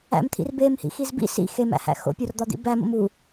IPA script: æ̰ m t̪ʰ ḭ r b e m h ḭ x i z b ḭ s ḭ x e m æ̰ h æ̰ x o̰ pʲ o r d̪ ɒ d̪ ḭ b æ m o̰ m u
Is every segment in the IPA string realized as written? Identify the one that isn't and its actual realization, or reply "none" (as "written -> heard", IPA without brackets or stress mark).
none